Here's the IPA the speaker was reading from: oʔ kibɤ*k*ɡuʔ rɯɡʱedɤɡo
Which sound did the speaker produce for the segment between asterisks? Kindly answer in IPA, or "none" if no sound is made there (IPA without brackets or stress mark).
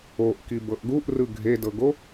ʔ